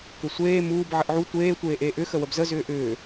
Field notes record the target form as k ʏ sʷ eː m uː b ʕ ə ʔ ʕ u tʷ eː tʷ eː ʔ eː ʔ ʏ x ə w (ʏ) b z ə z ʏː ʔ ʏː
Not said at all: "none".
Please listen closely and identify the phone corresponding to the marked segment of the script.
ə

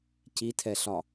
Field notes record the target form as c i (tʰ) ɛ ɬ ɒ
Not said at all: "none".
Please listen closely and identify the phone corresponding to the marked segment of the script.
tʰ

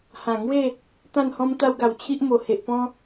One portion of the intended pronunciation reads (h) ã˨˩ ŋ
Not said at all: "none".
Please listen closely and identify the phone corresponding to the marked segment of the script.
h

